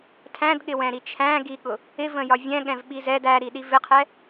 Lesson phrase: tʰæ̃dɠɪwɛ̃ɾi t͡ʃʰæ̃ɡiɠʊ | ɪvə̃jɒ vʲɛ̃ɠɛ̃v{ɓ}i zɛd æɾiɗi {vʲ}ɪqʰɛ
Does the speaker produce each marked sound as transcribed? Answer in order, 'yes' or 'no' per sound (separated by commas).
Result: yes, no